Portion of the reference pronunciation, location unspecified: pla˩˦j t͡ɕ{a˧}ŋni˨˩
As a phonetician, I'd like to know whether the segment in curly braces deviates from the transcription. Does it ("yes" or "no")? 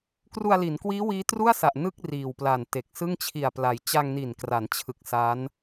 no